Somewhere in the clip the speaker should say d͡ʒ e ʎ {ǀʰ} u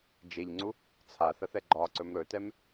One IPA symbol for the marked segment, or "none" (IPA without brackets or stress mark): ŋ͡ǀ